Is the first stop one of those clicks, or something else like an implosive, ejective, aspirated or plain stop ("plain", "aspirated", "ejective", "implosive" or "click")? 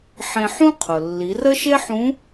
aspirated